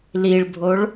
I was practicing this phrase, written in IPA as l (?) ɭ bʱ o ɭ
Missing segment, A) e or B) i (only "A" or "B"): B